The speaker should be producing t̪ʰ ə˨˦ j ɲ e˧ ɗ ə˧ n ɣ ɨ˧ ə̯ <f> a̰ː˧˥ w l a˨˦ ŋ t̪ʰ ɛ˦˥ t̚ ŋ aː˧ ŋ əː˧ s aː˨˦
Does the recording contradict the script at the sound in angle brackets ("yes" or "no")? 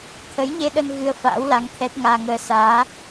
no